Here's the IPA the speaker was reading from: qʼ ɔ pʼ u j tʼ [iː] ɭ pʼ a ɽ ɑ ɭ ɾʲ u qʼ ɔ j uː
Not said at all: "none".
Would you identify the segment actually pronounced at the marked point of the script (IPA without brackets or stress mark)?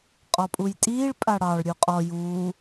iː